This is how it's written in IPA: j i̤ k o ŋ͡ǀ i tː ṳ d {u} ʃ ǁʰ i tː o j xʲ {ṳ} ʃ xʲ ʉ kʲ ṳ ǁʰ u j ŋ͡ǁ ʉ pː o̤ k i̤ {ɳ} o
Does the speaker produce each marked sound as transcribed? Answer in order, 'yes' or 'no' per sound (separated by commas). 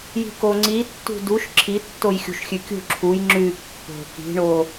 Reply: yes, yes, yes